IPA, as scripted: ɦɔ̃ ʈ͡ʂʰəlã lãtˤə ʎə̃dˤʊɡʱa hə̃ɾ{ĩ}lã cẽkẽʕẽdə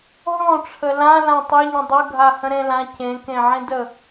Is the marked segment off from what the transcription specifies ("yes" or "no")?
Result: yes